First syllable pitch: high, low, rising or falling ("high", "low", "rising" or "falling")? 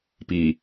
low